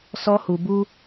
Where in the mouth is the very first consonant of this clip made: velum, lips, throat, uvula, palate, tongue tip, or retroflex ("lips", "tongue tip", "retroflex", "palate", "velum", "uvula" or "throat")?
tongue tip